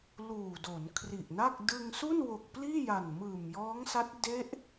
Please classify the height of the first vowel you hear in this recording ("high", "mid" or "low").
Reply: high